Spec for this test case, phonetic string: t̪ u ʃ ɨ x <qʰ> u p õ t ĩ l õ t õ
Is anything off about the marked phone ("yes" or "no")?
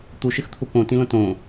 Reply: yes